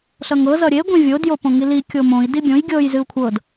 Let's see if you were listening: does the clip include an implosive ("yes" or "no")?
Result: no